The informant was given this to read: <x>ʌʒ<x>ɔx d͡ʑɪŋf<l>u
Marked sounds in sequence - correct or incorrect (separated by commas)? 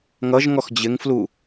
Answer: incorrect, incorrect, correct